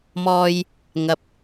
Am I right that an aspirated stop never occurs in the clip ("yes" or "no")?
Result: yes